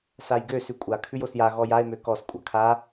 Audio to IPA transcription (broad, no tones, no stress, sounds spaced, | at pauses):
s a j ɡ ø s ʉ kʷʼ a kʰ ʉ j o s j a ɣ ɔ j a e̯ m ø k ɔ s kʷʼ a kʰ a